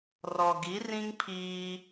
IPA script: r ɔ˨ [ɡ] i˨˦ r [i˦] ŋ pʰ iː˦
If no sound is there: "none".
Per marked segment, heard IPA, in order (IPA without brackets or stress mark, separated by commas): ɡ, ĩ˦